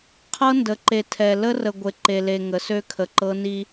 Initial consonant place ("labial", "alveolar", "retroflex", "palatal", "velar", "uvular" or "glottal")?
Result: uvular